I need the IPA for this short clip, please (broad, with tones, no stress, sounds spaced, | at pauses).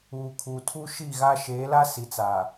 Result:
uː˨ kʰ u˨ tʰ u˦ ʃ i˦˨ ɣ a˦ ʃ eː˨˦ l a˦ s i˨ t͡s aː˨